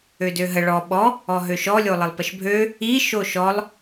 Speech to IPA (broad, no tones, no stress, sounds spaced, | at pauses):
ø d ø ɦ ə ɭ ɔ ɓ ɔ | ɔ ɦ ø ʃ ɔ lʲ o lˠ ə lˠ p ə ʃ bʱ ø | i ʃ o ʃ ɔ lˠ